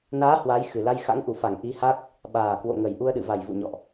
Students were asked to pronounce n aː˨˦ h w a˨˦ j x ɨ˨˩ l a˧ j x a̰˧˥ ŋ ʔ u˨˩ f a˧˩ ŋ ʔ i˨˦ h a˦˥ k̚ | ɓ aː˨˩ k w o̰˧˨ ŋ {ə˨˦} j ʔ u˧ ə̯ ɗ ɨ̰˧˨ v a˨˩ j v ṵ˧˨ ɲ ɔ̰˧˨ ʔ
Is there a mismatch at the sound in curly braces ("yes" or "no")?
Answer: yes